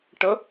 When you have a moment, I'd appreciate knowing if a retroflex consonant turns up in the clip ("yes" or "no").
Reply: yes